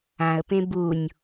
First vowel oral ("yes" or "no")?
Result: no